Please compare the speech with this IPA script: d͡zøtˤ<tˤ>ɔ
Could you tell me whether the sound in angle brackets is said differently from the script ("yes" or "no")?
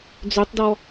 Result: yes